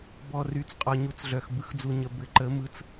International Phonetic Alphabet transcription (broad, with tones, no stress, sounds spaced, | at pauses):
b ɔ˨ r y˨˦ t͡s qʼ ɔ˨ ɲ u˨˦ t͡s ɮ œ˨ x b ɯ˨˦ x d͡z u˨ ɲ ə˨ b ɘ˨˦ ǃ ə˨˦ m ɯ˨˦ t͡s